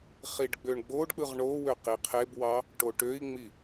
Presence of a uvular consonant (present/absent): present